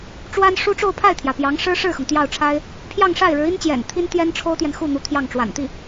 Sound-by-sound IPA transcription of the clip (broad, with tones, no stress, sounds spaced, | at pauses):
ʈ͡ʂ w a˥ n ʂ u˥ ʈ͡ʂ o˥˧ ʊ̯ pʰ a˥˩ ɪ̯ t̪ʰ j ä˩ p j ɑ˧˥ ŋ ʂ ɻ̩˥ ʂ ɻ̩˥˩ x ɤ˩ ŋ t̪ j ɑ˥˩ ʊ̯ ʈ͡ʂʰ a˥ ɪ̯ | pʰ j ɑ˥˧ ŋ ʂ a˥˩ ɪ̯ ɻ ɻ̩˧˥ i˥ n t͡ɕ j ɛ̰˨˩ n t̪ʰ i˥ n t̪ j ɛ˥ n ʈ͡ʂʰ o˥ ʊ̯ t̪ j ɛ˨ n x u˥˩ n̪ u˧˥ t̪ʰ j ɑ˥˩ ŋ ʈ͡ʂ w a̰˨˩ n t̪ i˥˩